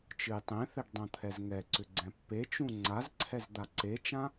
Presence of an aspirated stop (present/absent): present